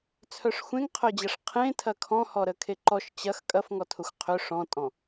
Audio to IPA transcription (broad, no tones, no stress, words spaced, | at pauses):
t͡sʰœʂxʷẽŋqʰœd͡ʑɐʂ qʰẽtʰɐ kʰɔ̃hɔɾə kʰeǃɔʃ t͡ɕɐx kʼɐfŋɔtʰʊxʷ qʰʏ ʂɔ̃tʼɔ̃